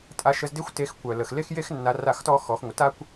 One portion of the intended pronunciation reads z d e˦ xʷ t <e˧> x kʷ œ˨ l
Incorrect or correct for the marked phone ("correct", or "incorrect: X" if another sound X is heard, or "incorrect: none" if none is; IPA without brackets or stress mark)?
correct